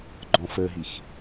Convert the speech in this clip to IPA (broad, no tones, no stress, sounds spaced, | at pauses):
ɡ͡ǃ ɔ̃ f ə ɦ i x